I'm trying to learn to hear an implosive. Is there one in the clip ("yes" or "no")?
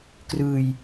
no